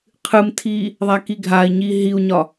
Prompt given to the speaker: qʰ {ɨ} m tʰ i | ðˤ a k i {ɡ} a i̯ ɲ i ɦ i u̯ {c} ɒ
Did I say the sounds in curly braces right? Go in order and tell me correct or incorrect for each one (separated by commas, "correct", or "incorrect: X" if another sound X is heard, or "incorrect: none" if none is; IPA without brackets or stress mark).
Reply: correct, incorrect: ɡʱ, incorrect: ɲ